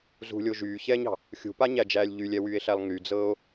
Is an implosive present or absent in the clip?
absent